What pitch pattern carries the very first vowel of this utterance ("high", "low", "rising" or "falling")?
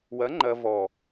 rising